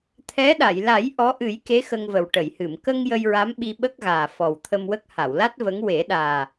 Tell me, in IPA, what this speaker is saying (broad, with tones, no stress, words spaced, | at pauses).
t̪ʰɛ˧˥ɗa˨˩˨j la˨˩˦j ʔɔ˧˥ʔɨ˨˩˦jke˧˥ xə˧ŋvə˨˩wʈə˨˩˨jhɨ˨˩˨m kə˧ŋ jə˧jɹa˧˥m ɓi˧ɓə˦˥k̚ɣaː˨˩ fɔ˨˩wt̪ʰə˧mwə˦˥k̚ ha˨˩˨wla˦˥t̚ və˧˥ŋ we˨˩˦ɗaː˨˩